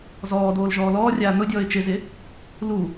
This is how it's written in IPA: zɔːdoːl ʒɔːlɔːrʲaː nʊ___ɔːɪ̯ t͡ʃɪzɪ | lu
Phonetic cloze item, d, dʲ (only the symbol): dʲ